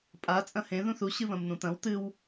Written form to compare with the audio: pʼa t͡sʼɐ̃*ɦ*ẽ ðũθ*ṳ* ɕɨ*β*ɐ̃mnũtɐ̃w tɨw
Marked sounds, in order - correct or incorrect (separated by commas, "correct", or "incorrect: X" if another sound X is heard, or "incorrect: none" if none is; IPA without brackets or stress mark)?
incorrect: h, incorrect: u, correct